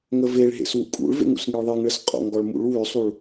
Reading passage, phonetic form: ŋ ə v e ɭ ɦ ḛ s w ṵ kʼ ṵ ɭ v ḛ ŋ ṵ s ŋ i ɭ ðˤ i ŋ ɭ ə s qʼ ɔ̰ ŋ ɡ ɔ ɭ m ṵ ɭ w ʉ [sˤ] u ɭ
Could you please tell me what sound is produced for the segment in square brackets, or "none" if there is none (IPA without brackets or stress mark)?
sˤ